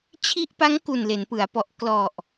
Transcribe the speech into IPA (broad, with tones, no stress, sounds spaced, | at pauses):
t͡ɕʰ i˦˥ ʔ p a˦˥ ŋ k u˨˩ n l e˩˦ n p ɯ˩˦ a̯ p ɔ˨˩ ʔ k l ɔ˨˩ ʔ